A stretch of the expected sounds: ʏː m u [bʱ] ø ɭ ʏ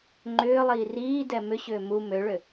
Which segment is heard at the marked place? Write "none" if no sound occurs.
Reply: m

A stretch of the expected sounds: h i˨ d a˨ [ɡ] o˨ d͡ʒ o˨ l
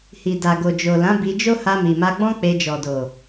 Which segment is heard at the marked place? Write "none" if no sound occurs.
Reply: ɡ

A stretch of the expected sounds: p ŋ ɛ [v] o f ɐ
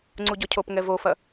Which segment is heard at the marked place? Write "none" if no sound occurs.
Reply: v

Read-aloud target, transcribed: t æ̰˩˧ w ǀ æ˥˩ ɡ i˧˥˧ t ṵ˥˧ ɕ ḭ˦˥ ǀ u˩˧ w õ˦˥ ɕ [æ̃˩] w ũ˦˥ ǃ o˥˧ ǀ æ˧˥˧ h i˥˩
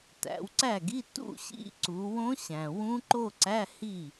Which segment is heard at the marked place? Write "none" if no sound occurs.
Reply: æ̃˩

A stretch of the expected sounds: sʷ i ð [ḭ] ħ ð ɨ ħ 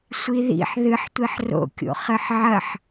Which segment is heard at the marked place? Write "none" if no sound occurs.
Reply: ḭ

